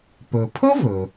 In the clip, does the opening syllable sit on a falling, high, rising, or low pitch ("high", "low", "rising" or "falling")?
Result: low